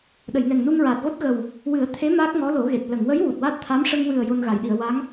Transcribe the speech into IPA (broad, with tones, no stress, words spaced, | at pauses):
ɗə˨˩˨jŋɛ˨˩ŋnu˧ŋɹaː˨˩t̚ ɣo˦˥t̚ɣə˨˩w | wɨ˨˩˦ə̯t̪ʰe˧˥ maː˦˥k̚ ŋɔ˧˥lo˨˩˦ɣe˨˩t̚ lə˨˩˨ŋwə˧˥j wu˨˩t̚ waː˦˥t̚ t̪ʰa˧˥mʂə˧ŋwɨ˨˩ə̯ jo˧nɣa˨˩˨jɗi˨˩˨ə̯ wa˧˥ŋ